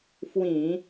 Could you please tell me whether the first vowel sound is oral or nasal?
nasal